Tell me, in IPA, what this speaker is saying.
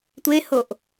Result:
tʷehoʔ

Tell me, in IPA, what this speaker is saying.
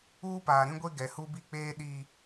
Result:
uː˦paː˨ɾĩ˦ɡʷe˦ ɡɛ˨hu˦bi˦˨k͡peː˦ ɗiː˨

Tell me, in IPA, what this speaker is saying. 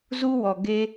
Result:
zu˦wɔ˨ ɡe˦

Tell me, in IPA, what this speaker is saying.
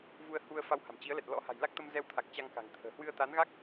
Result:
vu˧ə̯hu˧ə̯ fa˧wha̤˨˩mt͡ɕi˨˦ə̯lɛ˨˩t̚ lɔ̰˧˥ha̤˨˩jla˦˥k̚t̪ə˧m zɛ˧wt̪ʰa˨˩k̚ t͡ɕa˧ŋka̤˨˩ŋt̪ʰə̤ː˨˩ hwɨ˧ə̯t̪a˨˦nɣa˦˥k̚

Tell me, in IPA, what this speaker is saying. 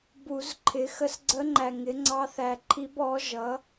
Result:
bu˨˩˦zǃʰɪ˩˥ xə˧˥sɡ͡ǀə˧˥ŋ͡ǃæ˨ ŋɪ˩˥ŋ͡ǀɑ˧˥ θæ˨ǃʰi˧˥b ɔ˩˥ ʒʌ˩˥

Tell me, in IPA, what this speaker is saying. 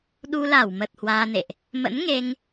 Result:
ɗu˧ la˧˩wmə˨˩t̚ hwaː˧nḛ˧˨ʔ | mə̰˧˥nŋe˧ŋ

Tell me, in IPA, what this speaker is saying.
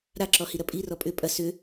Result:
ɾaǁɔhiɾɐ pʼirɔ pʼʏ pʼɐ sʏ

